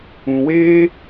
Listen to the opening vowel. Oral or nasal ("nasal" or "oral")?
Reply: nasal